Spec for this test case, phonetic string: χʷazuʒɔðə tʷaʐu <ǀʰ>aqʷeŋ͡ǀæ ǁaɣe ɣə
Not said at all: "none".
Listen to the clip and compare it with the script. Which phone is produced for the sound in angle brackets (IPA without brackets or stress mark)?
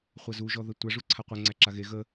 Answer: ǀʰ